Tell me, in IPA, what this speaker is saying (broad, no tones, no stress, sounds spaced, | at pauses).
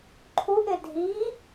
ǃʰ u ʔ ɪ dʱ i